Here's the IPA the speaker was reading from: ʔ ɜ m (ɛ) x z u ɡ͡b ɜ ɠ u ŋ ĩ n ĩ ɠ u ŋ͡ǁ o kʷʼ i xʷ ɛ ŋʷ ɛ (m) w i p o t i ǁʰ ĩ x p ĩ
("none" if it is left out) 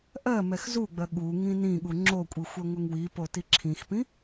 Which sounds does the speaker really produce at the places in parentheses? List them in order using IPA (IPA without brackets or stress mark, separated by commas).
ɛ, ŋ